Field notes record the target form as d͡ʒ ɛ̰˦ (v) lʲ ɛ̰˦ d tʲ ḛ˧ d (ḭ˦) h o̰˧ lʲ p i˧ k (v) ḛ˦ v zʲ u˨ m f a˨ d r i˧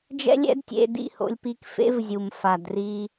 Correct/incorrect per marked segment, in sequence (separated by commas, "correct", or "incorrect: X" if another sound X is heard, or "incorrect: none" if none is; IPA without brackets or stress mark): incorrect: none, incorrect: ḭ˧, incorrect: f